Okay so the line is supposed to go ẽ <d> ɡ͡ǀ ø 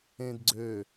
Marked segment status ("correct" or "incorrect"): correct